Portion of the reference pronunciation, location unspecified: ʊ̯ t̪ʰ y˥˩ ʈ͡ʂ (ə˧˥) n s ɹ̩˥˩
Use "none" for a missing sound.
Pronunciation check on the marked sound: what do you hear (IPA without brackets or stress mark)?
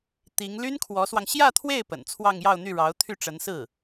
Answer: ə˧˥